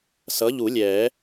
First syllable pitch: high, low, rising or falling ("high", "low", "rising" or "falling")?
rising